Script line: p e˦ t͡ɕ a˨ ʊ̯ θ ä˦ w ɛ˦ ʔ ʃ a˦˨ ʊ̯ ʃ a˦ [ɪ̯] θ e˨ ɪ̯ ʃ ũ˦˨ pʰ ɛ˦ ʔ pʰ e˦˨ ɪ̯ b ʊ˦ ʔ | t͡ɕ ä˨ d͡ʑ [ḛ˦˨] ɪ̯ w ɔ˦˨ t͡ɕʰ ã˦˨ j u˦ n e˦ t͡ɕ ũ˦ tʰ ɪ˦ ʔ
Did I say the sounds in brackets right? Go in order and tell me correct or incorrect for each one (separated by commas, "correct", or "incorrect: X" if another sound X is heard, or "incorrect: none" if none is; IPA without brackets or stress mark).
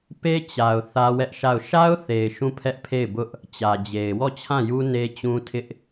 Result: incorrect: ʊ̯, incorrect: e˨